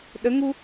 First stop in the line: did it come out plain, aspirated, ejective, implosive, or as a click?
implosive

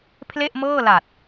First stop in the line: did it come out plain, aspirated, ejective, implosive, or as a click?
aspirated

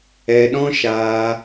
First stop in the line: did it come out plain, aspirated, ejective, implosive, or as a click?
implosive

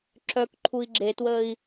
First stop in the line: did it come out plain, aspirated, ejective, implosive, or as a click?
click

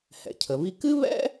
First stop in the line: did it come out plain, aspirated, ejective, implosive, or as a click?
aspirated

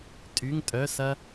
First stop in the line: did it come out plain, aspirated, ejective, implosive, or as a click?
ejective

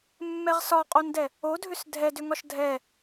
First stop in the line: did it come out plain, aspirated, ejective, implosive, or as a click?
ejective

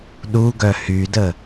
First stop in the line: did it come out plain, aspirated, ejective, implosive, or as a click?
implosive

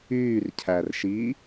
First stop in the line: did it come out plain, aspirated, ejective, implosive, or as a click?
aspirated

